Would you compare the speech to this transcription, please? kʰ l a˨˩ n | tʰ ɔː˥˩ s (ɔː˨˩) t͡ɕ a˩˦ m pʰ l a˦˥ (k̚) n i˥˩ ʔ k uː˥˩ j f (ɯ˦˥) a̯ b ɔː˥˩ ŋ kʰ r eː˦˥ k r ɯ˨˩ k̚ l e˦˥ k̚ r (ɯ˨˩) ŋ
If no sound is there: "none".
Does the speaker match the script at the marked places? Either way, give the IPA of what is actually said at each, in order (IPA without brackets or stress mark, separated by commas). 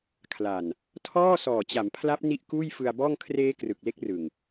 ɔː˨˩, p̚, ɯ˧, ɯ˨˩